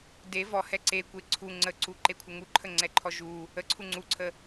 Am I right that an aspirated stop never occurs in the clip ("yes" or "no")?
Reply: no